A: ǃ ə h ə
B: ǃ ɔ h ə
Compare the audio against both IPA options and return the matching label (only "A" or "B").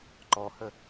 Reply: B